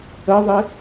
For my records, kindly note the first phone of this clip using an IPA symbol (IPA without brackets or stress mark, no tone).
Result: ə